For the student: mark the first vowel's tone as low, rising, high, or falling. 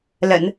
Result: low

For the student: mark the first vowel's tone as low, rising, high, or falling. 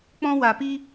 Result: high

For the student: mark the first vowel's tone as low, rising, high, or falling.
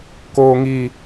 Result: low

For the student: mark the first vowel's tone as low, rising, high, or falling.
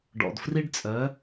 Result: low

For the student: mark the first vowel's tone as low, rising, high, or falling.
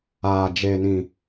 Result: low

